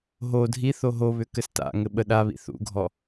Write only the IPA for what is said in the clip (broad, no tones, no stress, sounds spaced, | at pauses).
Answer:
ɦ o dʱ i θ o ɦ o β ʏ k ɘ s t a̰ ŋ ɘ ɓ ə ɗ a β ḭ θ ṵ ɡʱ ɔ